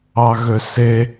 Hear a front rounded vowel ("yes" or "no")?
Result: yes